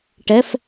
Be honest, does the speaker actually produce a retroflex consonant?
yes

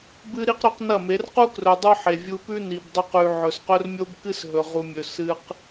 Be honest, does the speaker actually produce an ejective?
no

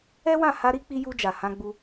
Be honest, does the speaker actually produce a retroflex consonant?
no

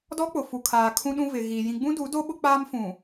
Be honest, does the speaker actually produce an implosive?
yes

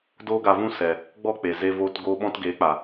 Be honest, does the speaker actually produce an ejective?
no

